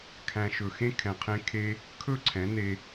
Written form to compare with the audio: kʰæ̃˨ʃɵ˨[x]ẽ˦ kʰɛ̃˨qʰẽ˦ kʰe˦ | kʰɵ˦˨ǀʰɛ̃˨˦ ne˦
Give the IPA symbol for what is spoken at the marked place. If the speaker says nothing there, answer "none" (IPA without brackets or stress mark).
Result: x